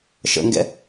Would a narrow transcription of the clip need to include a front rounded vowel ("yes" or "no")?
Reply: no